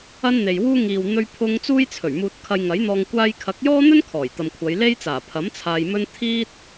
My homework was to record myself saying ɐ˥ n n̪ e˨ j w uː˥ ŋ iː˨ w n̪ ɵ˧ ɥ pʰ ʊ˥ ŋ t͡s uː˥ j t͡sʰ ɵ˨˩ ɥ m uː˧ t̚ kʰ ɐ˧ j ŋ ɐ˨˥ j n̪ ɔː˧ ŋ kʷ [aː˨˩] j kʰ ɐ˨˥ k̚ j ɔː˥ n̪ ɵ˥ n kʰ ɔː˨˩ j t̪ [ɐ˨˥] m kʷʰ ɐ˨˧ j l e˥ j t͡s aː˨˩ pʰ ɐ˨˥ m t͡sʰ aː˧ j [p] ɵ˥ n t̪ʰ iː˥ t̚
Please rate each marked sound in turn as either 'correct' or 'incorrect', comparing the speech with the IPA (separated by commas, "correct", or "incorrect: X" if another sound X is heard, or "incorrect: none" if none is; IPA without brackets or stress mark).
incorrect: aː˧, incorrect: ɐ˨, incorrect: m